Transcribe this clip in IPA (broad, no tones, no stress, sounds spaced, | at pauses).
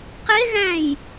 q e ɣ æ̃ j